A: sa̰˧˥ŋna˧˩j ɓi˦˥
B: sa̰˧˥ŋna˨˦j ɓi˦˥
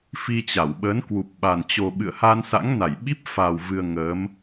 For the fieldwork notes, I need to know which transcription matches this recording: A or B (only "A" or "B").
A